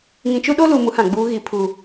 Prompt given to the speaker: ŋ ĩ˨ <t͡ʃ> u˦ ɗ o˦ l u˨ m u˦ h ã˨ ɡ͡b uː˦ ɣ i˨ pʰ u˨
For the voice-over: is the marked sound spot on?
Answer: yes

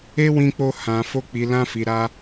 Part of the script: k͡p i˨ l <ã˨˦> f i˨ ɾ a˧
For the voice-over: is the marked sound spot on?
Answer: no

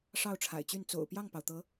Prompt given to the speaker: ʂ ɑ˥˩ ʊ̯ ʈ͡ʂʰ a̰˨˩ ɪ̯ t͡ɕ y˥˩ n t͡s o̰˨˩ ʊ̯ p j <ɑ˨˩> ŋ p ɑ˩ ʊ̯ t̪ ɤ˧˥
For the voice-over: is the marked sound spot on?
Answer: no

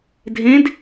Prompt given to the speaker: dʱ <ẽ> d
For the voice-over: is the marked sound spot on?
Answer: yes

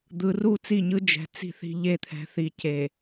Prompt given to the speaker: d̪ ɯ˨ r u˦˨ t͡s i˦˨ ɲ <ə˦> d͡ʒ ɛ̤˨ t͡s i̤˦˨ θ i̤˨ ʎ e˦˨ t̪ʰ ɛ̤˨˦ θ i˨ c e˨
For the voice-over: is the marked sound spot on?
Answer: no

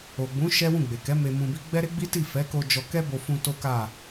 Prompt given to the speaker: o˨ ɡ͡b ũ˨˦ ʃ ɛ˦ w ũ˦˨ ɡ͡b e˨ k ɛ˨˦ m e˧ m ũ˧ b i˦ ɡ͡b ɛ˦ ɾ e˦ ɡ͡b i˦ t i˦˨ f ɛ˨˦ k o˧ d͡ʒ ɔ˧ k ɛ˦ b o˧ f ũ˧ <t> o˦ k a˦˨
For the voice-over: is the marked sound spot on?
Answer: yes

